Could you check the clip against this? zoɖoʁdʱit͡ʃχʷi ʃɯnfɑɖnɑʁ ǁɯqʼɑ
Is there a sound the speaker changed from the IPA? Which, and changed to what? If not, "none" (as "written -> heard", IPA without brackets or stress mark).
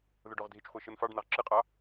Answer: z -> ð